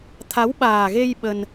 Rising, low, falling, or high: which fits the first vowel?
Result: rising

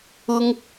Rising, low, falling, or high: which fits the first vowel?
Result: high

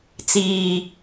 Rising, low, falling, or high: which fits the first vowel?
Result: low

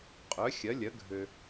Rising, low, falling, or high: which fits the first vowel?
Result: rising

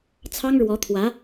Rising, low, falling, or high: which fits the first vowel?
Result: high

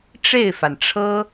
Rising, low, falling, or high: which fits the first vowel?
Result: falling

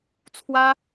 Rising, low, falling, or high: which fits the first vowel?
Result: high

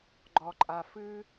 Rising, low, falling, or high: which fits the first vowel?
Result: low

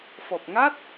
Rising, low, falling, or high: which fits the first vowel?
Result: low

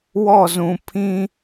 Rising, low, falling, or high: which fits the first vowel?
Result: falling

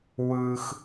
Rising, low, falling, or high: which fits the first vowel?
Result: high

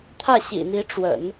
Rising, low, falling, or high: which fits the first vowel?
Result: falling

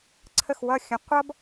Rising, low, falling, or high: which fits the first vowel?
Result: falling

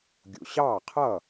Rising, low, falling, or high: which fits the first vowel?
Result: low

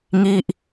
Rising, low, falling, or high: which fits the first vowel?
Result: falling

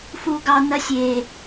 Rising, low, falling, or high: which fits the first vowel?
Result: low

